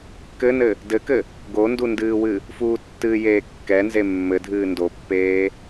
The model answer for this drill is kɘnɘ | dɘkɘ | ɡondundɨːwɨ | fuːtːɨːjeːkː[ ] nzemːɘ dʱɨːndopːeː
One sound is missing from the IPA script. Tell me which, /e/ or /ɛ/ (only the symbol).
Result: ɛ